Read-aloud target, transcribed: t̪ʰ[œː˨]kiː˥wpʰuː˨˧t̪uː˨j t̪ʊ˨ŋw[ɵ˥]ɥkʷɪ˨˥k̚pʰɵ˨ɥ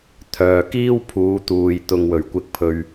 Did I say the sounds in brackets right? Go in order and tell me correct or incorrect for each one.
correct, incorrect: ɵ˨˩

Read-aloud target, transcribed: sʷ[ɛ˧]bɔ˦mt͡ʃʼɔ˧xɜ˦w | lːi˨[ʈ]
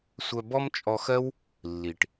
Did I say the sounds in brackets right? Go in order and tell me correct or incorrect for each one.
incorrect: œ˧, correct

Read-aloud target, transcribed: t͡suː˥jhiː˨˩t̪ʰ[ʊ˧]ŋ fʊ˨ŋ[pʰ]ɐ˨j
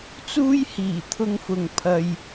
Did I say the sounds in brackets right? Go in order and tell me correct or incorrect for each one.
correct, correct

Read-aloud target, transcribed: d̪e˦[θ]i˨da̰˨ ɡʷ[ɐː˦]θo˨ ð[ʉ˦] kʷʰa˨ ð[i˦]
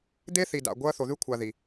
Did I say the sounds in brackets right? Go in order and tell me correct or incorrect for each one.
correct, correct, correct, incorrect: i˨

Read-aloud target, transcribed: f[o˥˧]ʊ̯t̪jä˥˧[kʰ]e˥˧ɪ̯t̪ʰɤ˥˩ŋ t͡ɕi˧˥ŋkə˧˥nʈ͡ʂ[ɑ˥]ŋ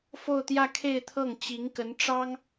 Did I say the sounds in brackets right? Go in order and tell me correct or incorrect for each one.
correct, correct, correct

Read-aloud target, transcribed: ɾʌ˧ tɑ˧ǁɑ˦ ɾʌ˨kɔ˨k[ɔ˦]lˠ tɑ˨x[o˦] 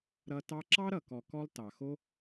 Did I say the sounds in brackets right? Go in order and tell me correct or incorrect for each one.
correct, correct

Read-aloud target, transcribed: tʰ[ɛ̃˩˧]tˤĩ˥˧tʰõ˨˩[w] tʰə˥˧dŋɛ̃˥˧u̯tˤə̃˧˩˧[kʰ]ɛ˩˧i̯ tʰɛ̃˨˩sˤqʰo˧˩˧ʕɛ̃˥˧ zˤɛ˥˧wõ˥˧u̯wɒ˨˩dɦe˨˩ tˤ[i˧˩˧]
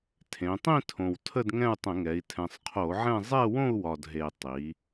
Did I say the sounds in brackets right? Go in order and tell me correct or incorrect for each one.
incorrect: ẽ˩˧, correct, incorrect: ŋ, incorrect: i˩˧

